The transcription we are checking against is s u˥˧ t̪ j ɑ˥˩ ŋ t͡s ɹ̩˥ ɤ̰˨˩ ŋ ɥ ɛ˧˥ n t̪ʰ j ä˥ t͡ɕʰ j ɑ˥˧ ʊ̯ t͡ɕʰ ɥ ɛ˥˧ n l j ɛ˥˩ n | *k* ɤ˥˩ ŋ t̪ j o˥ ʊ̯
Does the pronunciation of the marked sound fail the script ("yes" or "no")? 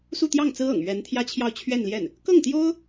no